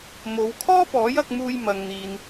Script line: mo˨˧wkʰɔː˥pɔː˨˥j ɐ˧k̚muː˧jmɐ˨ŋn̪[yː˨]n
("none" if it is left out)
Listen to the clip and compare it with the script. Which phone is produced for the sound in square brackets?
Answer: iː˨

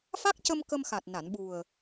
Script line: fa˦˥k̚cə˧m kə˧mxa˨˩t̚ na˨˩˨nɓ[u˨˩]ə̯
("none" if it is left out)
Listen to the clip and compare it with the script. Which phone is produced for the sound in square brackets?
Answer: u˨˩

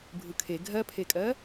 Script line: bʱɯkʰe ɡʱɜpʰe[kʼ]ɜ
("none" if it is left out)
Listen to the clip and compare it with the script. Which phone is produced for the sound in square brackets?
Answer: kʼ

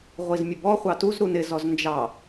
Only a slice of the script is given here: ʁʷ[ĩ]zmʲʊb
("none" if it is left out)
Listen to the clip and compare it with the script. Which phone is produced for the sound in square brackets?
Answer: i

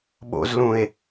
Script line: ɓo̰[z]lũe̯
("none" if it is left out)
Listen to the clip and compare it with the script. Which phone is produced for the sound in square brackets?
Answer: z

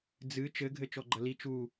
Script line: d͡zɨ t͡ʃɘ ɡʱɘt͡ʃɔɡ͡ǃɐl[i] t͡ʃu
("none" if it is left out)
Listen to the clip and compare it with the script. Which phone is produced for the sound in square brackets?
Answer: i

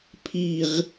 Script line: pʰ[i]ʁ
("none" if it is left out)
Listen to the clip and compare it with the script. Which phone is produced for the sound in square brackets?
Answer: i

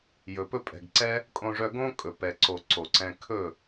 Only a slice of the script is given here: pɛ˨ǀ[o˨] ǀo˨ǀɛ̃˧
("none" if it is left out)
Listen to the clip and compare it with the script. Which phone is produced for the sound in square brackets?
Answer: o˨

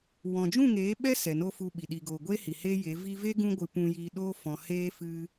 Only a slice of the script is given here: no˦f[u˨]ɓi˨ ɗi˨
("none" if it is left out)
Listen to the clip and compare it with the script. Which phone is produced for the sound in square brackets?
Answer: u˧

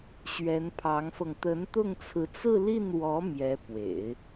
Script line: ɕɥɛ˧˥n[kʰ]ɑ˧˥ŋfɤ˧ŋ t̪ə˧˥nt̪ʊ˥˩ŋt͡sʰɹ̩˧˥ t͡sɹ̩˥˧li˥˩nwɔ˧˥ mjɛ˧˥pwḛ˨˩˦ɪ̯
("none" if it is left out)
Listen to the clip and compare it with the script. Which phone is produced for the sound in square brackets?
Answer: pʰ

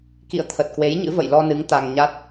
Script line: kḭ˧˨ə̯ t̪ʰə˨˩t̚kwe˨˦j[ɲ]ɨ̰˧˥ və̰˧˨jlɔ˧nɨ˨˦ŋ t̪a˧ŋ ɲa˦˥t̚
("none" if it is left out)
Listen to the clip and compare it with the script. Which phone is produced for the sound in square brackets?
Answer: ɲ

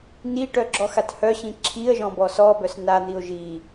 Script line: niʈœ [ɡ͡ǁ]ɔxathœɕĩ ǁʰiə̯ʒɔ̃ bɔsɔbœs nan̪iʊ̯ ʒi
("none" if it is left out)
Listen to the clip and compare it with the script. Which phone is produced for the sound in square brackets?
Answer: ɡ͡ǁ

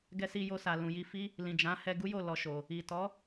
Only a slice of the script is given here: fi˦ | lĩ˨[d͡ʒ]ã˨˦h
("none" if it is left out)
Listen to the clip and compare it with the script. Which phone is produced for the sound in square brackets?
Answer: d͡ʒ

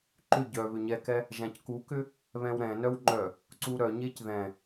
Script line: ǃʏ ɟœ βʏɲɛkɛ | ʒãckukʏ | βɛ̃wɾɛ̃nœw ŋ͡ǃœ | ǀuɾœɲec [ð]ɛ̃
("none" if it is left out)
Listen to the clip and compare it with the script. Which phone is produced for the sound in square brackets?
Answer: ð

